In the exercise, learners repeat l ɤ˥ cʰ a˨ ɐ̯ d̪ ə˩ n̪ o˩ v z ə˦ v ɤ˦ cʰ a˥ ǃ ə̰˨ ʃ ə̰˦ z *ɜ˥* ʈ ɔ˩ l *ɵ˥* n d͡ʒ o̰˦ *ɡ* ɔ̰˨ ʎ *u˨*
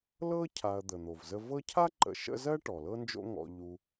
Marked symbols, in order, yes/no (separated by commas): yes, no, no, yes